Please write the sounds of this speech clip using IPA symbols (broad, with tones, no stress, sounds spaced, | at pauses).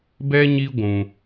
b ɛ˦ ɲ i˦ ɡʷ ũ˦